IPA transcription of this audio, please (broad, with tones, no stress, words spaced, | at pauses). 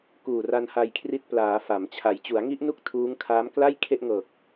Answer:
kuː˨˩ra˧nha˧jkʰri˦˥t̚ plaː˩˦ fa˩˦mt͡ɕʰa˨˩j t͡ɕu˩˦a̯ŋi˦˥ʔnu˥˩k̚ tʰuː˦˥ŋ kʰaː˦˥m kla˥˩j kʰe˥˩ʔŋɤː˨˩k̚